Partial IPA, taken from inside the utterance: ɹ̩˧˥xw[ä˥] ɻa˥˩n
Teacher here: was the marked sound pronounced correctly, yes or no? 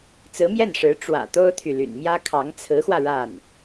no